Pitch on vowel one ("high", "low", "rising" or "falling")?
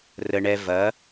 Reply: high